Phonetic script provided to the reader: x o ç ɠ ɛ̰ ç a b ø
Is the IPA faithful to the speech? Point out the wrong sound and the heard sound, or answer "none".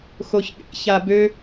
none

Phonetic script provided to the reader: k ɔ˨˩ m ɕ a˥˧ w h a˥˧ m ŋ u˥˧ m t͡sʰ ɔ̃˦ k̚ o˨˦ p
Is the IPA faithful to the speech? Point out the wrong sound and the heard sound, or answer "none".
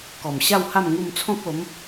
p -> m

